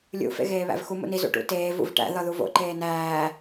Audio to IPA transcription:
lʲṵ fḛɣeːβæ̰vxu mṵni zṵʈṵ teː vṵvʈæ̰ ðɒðuvo̰ ǃeːnæː

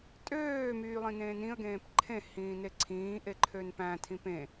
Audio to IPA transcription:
tʼøː myːlˠĩnẽːnĩə̯ ɡẽːpǃʰẽ hĩːneǀʰĩː ʔeǃʰønpæ̃ tʰĩpẽ

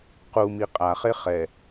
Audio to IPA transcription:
qumi qʼaχe χɛ

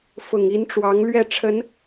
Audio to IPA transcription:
fʊ˨˩ŋ i˧˥nʈ͡ʂwɑ˧˥ŋ lɥɛ˥˩ʈ͡ʂʰə˧˥n

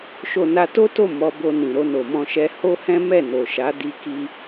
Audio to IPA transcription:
ʃo˧na˧to˦to˦˨ mɔ˧bo˧ nĩ˨ɾo˧no˨mɔ̃˧ ʃɛ˧ho˦hɛ̃˦ mɛ˦˨no˨ʃa˨˦ di˧ki˧

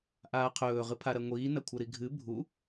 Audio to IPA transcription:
ʔaːqʰɵː ʁɨpʰaɾɐŋʷiː nɐkʷʰɐɾiɡʱɨ bʱu

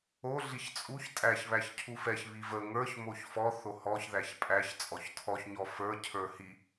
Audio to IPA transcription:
o ɮiçt͡sʼuç tʼæç βæçcʰufɛç βivə ŋə˞ç moçfɔ θohɔç ðæçpʼæç t͡sʼɔçtʰɔç ɲɔfə˞ cʰə˞hi

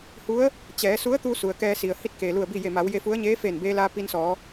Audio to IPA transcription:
hu˧˥ə̯ | t͡ɕɛː˩˧su˧˥ə̯t̪u˧ su˩ə̯kɛː˧si˩ə̯ hi˥˨t̚keː˩lu˧˩ə̯ bi˥˨ je˧˩ma˩˧wje˧fu˧˥ə̯ ɲeː˧˥ feː˧˩nbeː˧laː˧ pi˧nsɔː˩˧

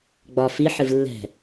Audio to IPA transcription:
ɡ͡bɒ fi ħɨvlːɛ̤

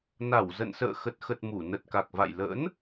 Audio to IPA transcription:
na˧˩wzə̰˧˨n sə̰ː˧˨xə˨˩t̚xə˨˩t̚ mu˧˩ nə˨˩t̚ ka˨˩k̚va̰˧˨j lə̰˧˥n

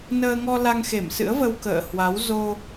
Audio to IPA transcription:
nəː˧ŋɔ˧la˧ŋ xe˧˩msɨ̰˧˥ə̯və˧w kə̰ː˧˨hwa˨˦w zo˧

